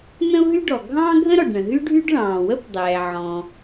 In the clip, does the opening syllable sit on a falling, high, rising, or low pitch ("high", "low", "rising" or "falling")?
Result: high